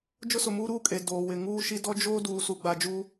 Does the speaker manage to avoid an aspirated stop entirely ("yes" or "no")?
yes